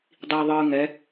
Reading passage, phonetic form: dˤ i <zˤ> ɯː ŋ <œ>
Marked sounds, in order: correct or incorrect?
incorrect, incorrect

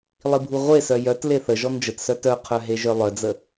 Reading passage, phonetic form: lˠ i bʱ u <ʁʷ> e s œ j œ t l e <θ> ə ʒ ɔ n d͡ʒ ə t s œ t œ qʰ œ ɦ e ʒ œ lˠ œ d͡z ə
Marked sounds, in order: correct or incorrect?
correct, correct

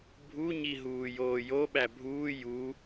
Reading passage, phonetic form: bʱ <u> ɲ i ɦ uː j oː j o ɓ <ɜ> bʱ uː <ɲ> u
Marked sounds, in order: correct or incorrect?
correct, incorrect, incorrect

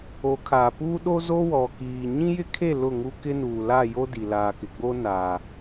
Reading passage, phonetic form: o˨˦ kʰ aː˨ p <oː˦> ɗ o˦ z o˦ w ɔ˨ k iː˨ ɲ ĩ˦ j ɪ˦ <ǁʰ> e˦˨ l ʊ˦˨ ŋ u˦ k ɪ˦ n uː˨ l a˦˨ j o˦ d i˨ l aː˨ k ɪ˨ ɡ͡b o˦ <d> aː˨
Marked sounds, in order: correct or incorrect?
incorrect, incorrect, incorrect

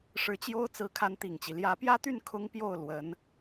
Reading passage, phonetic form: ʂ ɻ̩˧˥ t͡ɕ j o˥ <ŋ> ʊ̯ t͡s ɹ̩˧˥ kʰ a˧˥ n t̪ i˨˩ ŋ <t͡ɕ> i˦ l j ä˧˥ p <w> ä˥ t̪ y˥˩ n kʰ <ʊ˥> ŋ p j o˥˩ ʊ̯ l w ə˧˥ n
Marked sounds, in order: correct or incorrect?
incorrect, correct, incorrect, correct

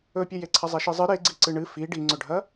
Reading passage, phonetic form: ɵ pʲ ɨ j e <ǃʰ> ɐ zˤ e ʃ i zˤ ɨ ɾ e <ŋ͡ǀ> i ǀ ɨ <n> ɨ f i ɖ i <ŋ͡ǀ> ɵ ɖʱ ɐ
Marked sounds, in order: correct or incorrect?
incorrect, incorrect, incorrect, correct

